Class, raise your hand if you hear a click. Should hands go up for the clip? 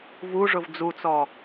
no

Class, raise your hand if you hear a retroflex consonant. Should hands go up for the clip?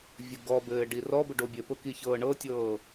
yes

